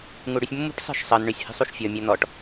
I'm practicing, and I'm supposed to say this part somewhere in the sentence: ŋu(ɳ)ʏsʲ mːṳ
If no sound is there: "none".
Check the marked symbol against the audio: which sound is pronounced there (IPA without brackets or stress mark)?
ɽ